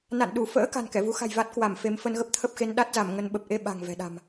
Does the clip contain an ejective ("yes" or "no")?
no